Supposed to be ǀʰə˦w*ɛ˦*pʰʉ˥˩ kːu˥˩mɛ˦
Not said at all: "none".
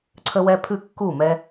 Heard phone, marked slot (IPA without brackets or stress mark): ɛ˦